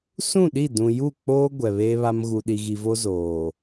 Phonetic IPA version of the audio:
sũ˦˨ɗi˦˨ dũ˨ju˦˨k͡poː˦ ɡʷɛ˨βeː˦βa˦m ɣu˨ɗi˨ɣi˨vo˦ zoː˨

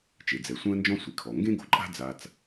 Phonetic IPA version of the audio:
t͡ʃe˩d͡zɛ˩ sʷɛ̃˥ə̯nd͡ʒɔ̃˥ sʷi˩kʰɔ˩ ŋɡẽ˥ɡo̤˩ǃʼa̤˥ d͡za˧t͡s

